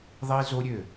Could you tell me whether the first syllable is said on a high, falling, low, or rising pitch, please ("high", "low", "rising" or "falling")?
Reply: high